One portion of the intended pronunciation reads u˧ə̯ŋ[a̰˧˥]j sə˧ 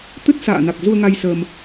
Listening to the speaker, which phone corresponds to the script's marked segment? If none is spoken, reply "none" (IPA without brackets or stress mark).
a˧